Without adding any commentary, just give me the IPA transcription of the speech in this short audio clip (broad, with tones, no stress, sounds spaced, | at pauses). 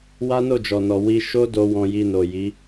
w a˦ n o˦˨ d͡ʒ ɔ˨ n ɔ˨ w i˧ ʃ o˦ d o˧ w ɔ̃˧ j i˧ n o˨ j i˨˦